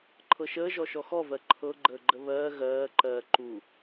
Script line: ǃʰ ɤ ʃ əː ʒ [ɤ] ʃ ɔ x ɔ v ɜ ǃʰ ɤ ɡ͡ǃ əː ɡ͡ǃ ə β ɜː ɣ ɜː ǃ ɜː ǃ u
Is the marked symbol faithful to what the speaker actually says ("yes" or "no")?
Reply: no